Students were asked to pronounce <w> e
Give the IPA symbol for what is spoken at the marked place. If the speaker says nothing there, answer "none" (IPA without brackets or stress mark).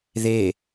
ð